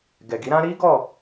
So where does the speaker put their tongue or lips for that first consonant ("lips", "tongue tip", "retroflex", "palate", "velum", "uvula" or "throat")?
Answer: velum